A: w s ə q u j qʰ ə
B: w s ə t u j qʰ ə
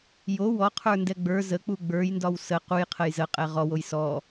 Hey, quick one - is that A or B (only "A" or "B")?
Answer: A